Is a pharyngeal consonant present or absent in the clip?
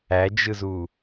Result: absent